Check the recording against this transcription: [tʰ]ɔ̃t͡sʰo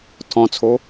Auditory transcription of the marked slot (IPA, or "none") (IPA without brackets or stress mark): tʰ